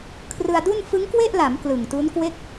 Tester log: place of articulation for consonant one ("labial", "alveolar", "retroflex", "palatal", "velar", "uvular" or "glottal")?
velar